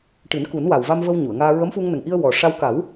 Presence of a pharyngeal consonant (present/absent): absent